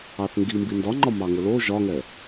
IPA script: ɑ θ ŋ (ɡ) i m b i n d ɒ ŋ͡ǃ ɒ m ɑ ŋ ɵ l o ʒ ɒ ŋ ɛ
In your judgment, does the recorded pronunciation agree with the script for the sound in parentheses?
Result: yes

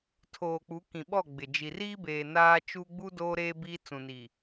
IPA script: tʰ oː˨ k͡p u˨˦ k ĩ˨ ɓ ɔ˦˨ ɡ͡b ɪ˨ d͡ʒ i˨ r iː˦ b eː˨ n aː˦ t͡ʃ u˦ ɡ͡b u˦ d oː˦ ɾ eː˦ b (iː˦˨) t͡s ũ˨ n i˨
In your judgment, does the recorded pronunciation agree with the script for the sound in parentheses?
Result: no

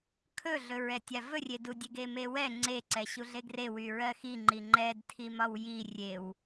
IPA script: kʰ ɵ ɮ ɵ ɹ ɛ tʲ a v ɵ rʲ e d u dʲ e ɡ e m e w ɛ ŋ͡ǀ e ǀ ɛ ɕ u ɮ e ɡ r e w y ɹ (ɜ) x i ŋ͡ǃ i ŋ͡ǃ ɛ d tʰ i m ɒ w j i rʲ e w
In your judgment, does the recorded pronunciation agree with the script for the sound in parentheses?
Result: yes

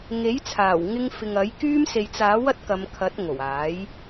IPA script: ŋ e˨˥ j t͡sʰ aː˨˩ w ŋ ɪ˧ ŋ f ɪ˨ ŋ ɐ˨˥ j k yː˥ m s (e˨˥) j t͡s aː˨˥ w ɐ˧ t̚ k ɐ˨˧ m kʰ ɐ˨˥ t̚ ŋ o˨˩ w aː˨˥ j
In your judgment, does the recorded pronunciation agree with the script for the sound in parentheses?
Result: no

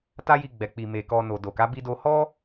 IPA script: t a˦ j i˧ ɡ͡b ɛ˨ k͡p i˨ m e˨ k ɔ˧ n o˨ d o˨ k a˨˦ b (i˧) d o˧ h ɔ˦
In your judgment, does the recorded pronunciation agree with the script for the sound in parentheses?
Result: yes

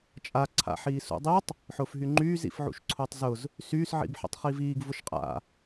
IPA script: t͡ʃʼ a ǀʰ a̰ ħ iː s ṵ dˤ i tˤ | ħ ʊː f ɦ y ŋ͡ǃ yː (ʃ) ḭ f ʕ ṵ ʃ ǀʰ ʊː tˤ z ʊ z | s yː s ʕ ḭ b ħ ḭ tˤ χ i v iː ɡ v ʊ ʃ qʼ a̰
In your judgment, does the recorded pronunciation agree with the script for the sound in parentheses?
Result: no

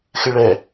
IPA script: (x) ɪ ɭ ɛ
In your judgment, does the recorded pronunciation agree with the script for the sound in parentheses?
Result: yes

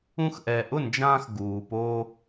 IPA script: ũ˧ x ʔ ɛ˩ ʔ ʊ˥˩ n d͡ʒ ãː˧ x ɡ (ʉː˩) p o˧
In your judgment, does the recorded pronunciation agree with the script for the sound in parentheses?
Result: no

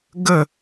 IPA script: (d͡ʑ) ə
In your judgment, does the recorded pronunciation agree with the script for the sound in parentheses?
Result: no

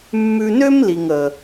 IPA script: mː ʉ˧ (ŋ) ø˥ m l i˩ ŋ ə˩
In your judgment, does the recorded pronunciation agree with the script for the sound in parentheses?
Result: no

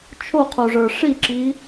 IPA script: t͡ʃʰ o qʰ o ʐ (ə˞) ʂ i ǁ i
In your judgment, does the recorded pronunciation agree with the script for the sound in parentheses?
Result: yes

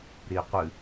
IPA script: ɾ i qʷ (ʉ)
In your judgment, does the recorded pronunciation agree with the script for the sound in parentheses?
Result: no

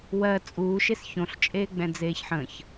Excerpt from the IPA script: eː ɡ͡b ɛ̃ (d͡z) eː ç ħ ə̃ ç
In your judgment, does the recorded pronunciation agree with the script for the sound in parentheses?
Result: yes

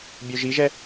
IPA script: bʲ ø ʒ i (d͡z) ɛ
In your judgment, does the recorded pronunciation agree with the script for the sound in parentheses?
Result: no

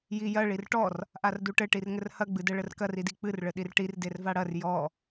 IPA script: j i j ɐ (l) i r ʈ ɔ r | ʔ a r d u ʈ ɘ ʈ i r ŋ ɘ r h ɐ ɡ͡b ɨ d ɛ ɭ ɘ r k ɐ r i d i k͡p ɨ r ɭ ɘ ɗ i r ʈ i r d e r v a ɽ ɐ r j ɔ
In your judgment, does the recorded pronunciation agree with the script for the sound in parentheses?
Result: no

